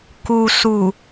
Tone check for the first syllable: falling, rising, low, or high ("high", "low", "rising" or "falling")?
low